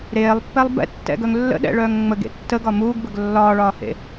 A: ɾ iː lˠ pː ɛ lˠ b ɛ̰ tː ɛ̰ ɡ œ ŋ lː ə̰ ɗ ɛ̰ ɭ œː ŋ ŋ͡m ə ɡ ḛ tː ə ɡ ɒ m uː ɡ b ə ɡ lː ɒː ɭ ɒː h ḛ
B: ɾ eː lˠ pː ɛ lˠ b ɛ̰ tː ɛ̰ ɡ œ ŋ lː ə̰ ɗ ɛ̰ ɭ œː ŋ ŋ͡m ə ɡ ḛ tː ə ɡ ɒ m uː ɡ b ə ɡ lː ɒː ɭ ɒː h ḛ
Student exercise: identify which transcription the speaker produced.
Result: B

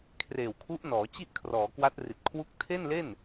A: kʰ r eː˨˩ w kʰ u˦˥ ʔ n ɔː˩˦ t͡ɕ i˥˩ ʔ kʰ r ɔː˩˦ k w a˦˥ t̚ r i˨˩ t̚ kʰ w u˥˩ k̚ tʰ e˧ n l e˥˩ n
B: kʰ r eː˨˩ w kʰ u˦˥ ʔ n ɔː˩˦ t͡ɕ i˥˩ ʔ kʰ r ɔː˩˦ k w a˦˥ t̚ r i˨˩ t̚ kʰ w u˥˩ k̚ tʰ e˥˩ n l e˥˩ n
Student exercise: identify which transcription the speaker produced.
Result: B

